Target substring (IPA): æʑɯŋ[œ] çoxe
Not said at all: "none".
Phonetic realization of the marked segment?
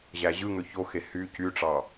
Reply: ø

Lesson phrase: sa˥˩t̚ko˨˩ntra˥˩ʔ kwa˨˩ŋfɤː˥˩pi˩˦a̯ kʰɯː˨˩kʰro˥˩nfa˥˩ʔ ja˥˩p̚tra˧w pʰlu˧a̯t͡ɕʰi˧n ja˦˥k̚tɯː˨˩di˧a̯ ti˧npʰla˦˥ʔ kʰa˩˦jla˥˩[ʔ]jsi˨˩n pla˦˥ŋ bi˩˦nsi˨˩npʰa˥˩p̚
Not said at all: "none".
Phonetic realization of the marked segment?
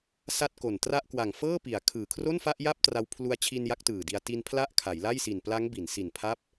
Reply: none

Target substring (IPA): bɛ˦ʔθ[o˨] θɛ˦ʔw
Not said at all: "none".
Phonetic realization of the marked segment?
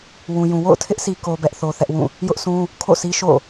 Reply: o˦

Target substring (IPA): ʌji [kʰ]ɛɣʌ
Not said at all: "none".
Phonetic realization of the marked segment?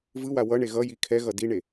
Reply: kʰ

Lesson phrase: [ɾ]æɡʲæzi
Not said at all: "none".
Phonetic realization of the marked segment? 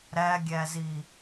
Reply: ɾ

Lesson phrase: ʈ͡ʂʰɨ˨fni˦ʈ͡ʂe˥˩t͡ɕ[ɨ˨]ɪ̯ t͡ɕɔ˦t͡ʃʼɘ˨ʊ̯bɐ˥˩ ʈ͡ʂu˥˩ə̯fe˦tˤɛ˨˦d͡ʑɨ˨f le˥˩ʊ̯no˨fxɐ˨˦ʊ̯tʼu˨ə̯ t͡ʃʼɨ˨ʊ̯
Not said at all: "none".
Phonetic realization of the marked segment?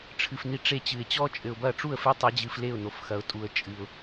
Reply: ɨ˨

